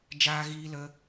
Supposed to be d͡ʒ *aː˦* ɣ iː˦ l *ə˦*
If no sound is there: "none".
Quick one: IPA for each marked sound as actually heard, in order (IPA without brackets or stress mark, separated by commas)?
aː˦, ə˦